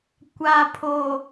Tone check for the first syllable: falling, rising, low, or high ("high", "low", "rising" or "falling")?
low